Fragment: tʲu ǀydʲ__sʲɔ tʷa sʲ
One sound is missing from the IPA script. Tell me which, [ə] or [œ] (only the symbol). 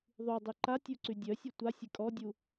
œ